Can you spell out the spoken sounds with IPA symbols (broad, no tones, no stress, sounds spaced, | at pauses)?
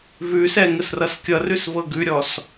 v ʉ s ɛ ŋ ə s r ʌ s kʲ ʌ r ʉ s v ɤ ɡ ʉ ɾʲ ɔ s